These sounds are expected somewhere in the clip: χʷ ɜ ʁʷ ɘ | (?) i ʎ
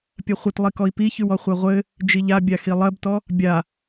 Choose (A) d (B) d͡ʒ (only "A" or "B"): B